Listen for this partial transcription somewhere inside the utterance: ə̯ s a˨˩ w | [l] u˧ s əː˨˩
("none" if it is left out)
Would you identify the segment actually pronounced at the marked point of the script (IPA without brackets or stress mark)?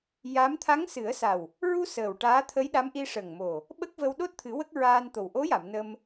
ɹ